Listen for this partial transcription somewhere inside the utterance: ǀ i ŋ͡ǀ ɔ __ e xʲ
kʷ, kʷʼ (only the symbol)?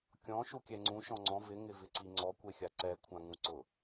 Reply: kʷ